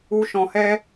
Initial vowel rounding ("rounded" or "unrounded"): rounded